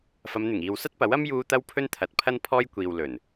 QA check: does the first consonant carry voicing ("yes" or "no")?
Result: no